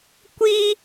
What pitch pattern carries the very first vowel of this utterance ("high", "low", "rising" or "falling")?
high